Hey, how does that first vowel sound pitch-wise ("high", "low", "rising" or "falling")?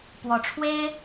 rising